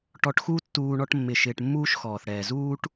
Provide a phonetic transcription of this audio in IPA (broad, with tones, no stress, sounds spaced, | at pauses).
ʈ ɔ˨ ʈ x u˦ tː uː˨ ɳ ɔ˦ ʈ mː ɪ˨ ʃ ɪː˨ ʈ mː uː˥ ʃ x ɔː˩ θ ɽ ɛː˩ z uː˥ ʈ